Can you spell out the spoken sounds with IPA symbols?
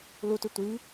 l u t ʉ tʷ i

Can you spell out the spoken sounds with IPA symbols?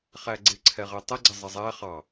χ æ ɡ͡ǀ ɪ ǀʰ ɛ ʁ ɛ tˤ ə ɡ͡ǀ ɪ zˤ ə zˤ æ χ ɑ

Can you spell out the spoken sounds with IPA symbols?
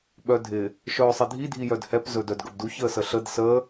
ɓ œ dʱ ɪ | ʃ œː sˤ ɪ dʱ i dʱ i j œ d h ɛ p z ɵ d œ d ɡ ɵ b d u ç əː s ə ɬ ə d s ə

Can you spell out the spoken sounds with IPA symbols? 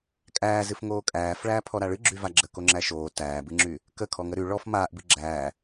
kʼ æː z ɨ f ŋ oː kʼ æː f ɭ æː pʰ ɔ ɾ a ɭ ɨ ɡ͡ǁ y v a ɡ͡ǁ ə k o ŋ͡ǁ æ ʃ oː t æː b ɨ ŋ͡ǁ y | k ə kʰ ɔ ŋ ə ɾ y ɭ ɔ f m aː ʔ b ɨ ɡ͡ǁ æː

